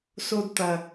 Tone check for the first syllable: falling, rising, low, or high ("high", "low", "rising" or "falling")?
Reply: high